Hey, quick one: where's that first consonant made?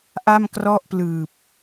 throat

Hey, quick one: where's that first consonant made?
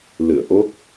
tongue tip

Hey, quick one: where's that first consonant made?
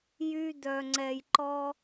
palate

